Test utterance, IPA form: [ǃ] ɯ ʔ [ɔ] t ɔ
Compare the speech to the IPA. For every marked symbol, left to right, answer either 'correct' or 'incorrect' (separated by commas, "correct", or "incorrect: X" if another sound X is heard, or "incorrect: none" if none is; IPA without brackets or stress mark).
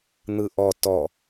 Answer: incorrect: n̪, correct